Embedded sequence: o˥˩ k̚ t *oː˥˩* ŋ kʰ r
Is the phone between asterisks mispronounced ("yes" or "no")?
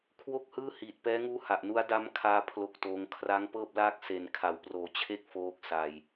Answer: yes